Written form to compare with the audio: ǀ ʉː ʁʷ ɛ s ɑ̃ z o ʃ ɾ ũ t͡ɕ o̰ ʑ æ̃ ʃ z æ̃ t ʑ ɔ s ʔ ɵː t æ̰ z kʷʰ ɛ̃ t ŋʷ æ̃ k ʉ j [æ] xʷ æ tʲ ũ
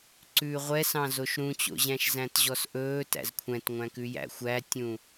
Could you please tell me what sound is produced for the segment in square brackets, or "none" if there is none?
æ̰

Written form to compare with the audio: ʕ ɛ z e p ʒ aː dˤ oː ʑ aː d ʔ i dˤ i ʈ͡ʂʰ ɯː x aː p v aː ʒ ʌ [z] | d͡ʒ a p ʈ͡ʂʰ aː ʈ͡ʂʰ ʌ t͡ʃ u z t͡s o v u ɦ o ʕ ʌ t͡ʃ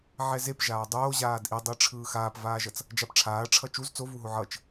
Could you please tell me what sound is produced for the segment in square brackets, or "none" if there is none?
t͡s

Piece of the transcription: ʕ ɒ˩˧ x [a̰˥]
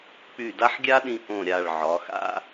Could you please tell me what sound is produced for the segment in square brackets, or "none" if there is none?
a̰˥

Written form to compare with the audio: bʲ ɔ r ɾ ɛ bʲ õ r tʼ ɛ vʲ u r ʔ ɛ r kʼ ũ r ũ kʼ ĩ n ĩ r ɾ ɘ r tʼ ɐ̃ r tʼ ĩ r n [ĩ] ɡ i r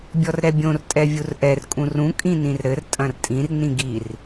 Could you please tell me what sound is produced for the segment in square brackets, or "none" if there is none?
ĩ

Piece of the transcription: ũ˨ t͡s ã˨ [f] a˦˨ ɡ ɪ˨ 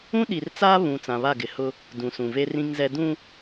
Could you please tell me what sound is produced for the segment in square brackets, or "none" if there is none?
β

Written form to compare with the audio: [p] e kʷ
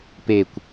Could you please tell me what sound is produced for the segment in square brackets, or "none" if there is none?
p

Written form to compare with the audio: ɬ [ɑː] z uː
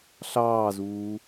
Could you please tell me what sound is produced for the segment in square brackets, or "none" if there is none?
ɑː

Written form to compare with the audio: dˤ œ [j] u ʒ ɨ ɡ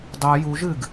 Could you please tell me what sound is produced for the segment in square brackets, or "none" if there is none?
j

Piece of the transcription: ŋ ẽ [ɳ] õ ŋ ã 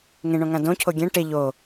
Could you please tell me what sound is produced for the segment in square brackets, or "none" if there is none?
ɳ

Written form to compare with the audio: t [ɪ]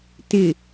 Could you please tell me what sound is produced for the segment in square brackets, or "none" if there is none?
ɪ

